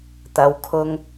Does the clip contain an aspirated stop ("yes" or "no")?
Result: yes